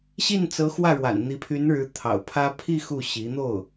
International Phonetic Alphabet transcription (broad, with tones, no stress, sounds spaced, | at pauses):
ɕ i˥˩ n t͡s ɤ˧˥ x w ä˥˩ ɻ w a̰˨˩ n n̪ i˧˥ pʰ y˧˥ n ɻ ɻ̩˧˥ t̪ʰ ɑ̰˨˩ ʊ̯ pʰ ä˥ pʰ i˥˧ x u˥˩ ɕ i˧˥ n̪ o˥˩ ʊ̯